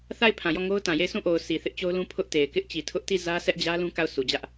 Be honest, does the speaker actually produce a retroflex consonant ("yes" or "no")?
no